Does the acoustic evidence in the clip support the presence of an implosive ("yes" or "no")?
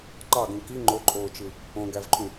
no